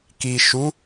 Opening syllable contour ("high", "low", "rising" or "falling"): low